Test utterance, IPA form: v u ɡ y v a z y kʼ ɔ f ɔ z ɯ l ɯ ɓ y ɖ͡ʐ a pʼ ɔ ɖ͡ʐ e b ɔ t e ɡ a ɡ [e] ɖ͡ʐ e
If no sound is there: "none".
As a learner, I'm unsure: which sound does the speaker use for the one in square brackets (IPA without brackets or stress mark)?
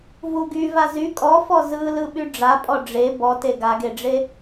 e